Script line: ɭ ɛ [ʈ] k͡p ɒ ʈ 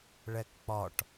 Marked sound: incorrect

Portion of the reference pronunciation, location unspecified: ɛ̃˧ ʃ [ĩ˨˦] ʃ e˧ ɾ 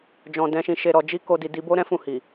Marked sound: incorrect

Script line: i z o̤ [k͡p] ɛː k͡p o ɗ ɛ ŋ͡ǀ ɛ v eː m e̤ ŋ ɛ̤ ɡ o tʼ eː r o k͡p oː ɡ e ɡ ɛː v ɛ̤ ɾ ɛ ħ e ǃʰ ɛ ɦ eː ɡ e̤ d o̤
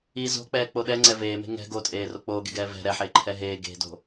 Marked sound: correct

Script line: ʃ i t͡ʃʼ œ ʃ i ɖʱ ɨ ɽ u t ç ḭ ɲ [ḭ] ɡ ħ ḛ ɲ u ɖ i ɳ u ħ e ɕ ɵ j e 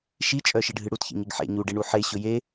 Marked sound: incorrect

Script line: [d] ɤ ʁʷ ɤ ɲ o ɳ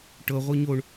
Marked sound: incorrect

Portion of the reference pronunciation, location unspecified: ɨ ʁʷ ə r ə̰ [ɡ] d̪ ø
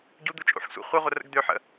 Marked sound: correct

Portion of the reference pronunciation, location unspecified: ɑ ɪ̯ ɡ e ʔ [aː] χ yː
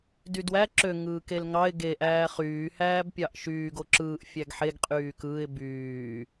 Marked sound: incorrect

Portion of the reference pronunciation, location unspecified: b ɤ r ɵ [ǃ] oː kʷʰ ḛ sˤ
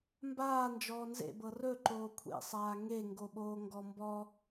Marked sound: correct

